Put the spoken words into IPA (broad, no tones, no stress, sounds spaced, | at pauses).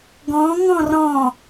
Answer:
ɡ ɔ̃ ŋ ɔ̃ r ɔ̃